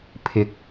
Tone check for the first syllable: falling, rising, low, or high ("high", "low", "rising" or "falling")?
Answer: rising